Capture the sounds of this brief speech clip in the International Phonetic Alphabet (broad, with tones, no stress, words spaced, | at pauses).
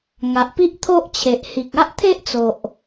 ŋa˨ʔpi˦ʔt̪ʰo˦ʔt͡ɕʰe˨ʔ hi˨k̚ a˦ʔt̪ʰe˦ʔt͡so˨ʔ